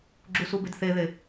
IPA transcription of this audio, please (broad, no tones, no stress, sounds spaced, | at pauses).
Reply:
ɡ͡ǁ u s u b e d θ e ð e